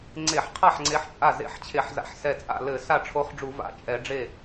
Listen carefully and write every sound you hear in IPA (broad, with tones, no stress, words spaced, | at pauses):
ŋ͡ǀe˧˩˧ħqʰa˥˩ħ ŋ͡ǀe˧˥ħt͡ʃʼa˥˩ zḛ˧˥ħt͡ɕʰe˧˩˧ħza̰˧˩ħ sɛ˧˩t͡sʼa̰˥˩lɘ˧˩˧ sa˥˩ʈ͡ʂʰo˧˥χɖ͡ʐu˧˩˧va̰˧˥ t͡ʃʼɛ˧˩˧ɖ͡ʐe˥˩